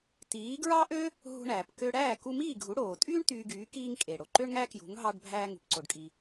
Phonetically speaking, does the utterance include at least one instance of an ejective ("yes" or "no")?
yes